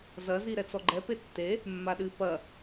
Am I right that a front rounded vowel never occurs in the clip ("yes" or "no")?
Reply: yes